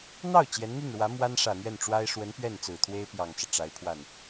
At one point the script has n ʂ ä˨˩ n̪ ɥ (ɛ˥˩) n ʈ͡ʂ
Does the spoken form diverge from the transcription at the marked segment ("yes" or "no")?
no